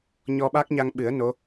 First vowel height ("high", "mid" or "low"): mid